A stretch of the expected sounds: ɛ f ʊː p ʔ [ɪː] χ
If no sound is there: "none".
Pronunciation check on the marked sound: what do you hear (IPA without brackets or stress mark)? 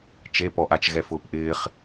ɪː